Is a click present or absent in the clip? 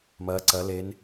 present